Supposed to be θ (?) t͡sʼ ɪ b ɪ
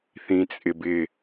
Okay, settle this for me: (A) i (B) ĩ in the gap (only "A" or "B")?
B